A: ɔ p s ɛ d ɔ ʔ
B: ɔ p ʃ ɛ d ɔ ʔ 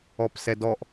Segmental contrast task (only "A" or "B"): A